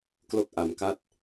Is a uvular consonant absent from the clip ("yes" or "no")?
yes